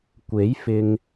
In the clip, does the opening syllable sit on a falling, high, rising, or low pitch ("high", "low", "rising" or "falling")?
rising